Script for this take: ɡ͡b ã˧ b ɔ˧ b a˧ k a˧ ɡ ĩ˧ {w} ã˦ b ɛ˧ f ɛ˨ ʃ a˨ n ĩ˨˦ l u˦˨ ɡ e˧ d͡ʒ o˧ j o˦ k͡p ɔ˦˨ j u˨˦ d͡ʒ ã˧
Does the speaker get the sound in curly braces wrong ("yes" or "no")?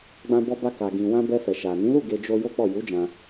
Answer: no